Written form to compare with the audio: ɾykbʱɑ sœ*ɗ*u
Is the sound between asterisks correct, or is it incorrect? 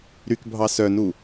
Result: incorrect